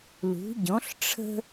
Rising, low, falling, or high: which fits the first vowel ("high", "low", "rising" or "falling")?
rising